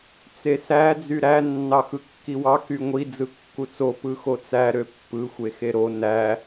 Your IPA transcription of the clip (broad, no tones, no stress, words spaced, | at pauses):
t͡sesæ d͡zyɾæ nːɑxɯkːiwɑ kyŋʷi d͡zɯkːut͡so pɯxot͡sæ ɾøpːɯ xʷexeɾo næ